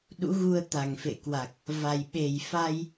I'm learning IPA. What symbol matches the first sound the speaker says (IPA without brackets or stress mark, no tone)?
ɗ